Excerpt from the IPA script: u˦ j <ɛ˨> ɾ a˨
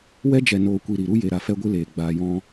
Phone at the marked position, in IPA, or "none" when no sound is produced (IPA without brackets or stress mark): e˨